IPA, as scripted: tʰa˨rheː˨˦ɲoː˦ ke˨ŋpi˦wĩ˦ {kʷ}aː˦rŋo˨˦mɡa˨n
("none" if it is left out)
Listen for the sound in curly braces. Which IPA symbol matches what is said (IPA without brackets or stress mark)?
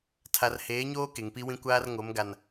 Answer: kʷ